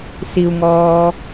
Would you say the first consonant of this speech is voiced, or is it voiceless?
voiceless